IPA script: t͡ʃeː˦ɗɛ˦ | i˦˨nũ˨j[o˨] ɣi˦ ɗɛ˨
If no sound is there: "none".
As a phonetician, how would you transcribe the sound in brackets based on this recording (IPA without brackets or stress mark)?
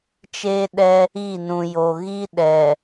o˨